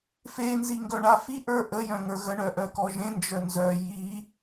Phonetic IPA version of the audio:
f e n z i ŋ ɡ œ ɳ a f i ʔ ə˞ ʔ ə j œ̃ ŋ ə˞ ɣ ə ɳ œ ʔ œ k ɔ ʒ ẽ n d͡ʒ œ n z œ j i

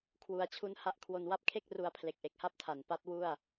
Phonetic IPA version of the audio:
kʰ w u˩˦ a̯ t͡ɕʰ u˦˥ n h a˦˥ ʔ kʰ w o˧ n w a˦˥ p̚ kʰ e˥˩ k̚ r u˧ a̯ pʰ l e˨˩ k̚ ʔ e˨˩ k̚ h a˥˩ p̚ tʰ a˨˩ n p a˦˥ t̚ w u˥˩ a̯

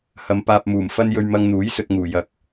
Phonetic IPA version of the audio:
h ɐ˨˧ m p aː˧ p̚ m uː˨˩ m f ɐ˥ n j ɵ˧ ɥ m ɐ˧ ŋ n̪ uː˨˥ j s ɵ˧ t̚ ŋ uː˨˩ j ɐ˨˥ k̚

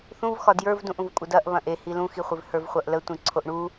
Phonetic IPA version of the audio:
θ ũ v x ɒ d j ə˞ v d ũ ʔ ũ v kʷʼ ə d ɐ ʔ β ɐ̃ ʔ e h i l ũ x i χʷ ɪ v h ə˞ v χʷ ɐ ʔ l ə tʷ ĩ ǀʰ o ʔ ɳ u

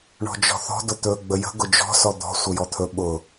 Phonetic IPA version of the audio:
ɳ ɔ̤ d͡ʒ ɔ̤ θ ɔ̤ d ʊ t̪ ɵ ɡ͡b ə j ə̤ ɡ ʊ d͡ʒ ɔ̤ s ɔ d̪ ɔ̤ sʷ ə j ɔ t̪ʰ ɵ ɓ ʊ

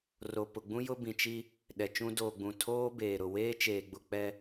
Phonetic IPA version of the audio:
r o˨ p ʊ˨ ɡ͡b ũ˦ j ʊ˦ b ĩ˨ t͡ʃ i˦ | ɗ ɛ˨ t͡ʃ ũ˦ d oː˨ ɡ͡b ũ˨ tʰ oː˦ b eː˨ ɾ ʊ˨ w eː˦ t͡ʃ eː˨ ɡ͡b ʊ˨ k͡p ɛ˦

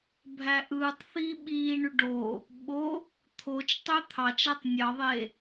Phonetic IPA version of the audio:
bʱ æ ʔ ɯː tˤ θ iː ɓ iː ɳ y ɖ o | ɓ o | t̪ʰ o t͡ʃ tˤ ø t̪ʰ ɑ t͡ʃ æ tˤ nʲ ɑ ðˤ e

